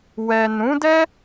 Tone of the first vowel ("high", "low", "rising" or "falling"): low